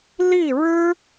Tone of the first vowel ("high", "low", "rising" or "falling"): falling